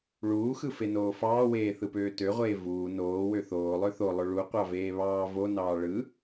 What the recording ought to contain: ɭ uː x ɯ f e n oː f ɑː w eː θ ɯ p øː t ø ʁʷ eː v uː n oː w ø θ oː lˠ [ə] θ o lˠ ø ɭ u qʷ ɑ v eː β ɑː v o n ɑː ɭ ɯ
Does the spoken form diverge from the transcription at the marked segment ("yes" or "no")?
yes